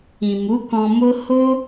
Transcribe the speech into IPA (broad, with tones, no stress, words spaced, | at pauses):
ĩ˨mu˨˦kɔ̃˧ mo˦ ho˦